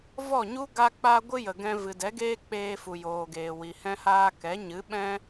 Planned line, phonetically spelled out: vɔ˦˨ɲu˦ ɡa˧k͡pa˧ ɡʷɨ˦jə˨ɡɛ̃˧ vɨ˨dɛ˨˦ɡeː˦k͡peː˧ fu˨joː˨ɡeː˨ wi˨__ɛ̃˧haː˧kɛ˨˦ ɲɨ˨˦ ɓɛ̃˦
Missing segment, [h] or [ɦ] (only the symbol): h